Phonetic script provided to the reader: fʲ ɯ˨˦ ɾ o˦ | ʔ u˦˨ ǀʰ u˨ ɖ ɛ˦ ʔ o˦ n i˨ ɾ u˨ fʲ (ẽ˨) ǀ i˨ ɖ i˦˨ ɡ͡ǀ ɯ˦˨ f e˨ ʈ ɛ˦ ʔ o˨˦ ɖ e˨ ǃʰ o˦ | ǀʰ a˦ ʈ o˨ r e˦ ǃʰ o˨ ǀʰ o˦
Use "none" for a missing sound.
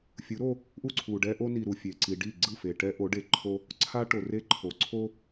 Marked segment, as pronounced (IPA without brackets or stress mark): e˨